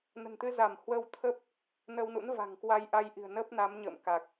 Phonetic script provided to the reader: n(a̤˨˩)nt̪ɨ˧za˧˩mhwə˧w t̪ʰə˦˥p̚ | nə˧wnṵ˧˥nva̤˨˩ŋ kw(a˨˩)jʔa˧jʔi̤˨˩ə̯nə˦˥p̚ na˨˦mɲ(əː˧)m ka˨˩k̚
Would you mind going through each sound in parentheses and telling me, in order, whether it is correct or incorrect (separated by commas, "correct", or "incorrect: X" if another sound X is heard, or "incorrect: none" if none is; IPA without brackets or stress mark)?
incorrect: ə̤˨˩, incorrect: a˧, incorrect: ə̰ː˧˨